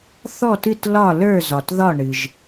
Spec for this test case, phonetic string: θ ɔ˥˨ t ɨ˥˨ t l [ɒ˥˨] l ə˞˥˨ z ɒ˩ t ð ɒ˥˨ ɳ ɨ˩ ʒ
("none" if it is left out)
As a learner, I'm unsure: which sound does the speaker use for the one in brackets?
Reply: ɒ˥˨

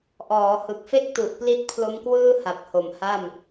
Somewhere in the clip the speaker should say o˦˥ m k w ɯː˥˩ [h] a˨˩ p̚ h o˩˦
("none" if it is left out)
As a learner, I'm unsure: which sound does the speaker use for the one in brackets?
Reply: h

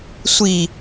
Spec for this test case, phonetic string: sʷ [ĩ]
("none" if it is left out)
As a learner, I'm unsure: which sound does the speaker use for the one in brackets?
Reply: i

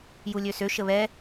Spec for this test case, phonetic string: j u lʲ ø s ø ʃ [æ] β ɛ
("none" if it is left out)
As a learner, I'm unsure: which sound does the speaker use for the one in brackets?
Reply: ə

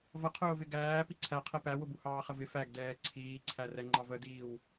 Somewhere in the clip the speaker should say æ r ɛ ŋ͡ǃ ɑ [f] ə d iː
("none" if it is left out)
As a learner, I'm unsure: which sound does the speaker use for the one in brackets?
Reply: v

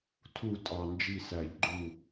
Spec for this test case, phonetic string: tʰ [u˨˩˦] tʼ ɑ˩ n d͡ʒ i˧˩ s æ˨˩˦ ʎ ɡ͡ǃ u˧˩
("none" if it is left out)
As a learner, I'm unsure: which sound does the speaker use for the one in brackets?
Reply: u˨˩˦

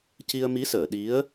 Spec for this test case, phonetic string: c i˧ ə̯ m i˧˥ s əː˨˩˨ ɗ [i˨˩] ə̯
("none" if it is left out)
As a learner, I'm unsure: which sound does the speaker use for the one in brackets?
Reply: i˧˥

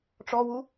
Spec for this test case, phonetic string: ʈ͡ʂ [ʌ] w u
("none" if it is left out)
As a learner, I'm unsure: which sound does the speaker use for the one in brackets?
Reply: ɔ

